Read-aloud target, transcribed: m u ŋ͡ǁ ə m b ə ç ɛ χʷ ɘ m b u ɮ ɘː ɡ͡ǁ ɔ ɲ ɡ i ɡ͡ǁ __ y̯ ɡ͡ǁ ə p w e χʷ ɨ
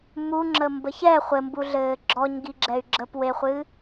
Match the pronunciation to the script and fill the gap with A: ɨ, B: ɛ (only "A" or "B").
B